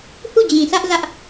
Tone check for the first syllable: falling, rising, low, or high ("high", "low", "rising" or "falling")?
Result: falling